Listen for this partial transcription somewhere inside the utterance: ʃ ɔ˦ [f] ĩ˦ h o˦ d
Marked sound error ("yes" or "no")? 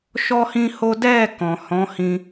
yes